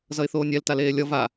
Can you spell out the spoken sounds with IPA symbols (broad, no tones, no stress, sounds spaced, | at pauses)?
z ʌ ɪ̯ θ oː nʲ ɛ l t a l eː lʲ ʌ v a